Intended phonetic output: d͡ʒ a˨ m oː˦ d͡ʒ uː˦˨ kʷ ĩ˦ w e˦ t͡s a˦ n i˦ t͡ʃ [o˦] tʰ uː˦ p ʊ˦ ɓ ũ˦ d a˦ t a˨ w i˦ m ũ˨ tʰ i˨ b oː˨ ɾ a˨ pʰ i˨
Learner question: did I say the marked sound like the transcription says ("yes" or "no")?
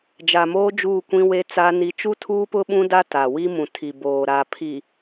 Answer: no